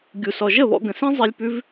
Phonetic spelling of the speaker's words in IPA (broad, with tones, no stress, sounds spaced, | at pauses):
ɡʲ u˧ s ɔ˧ ʒ ə˦˨ β ɔ̰˧ ɡ ə̃˨ s ĩ˦ zˤ i˧ lʲ p ʉ˦ v